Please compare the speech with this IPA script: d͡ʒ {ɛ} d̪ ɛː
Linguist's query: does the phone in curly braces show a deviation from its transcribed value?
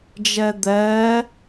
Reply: no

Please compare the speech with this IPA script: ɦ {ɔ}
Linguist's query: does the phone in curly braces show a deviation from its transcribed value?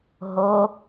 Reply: yes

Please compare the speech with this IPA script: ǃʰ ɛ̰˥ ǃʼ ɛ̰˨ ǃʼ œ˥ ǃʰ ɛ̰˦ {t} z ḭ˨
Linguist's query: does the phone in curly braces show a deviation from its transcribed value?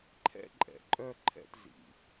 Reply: no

